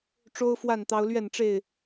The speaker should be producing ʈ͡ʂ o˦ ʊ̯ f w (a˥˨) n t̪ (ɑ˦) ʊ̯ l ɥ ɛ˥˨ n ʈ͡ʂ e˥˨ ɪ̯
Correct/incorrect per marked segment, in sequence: correct, correct

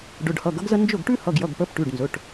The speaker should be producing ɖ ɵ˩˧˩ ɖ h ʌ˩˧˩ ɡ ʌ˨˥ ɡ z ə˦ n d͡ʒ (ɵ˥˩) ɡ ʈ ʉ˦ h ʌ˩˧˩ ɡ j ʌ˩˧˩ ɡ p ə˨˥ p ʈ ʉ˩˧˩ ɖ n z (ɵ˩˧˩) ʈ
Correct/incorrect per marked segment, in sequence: correct, correct

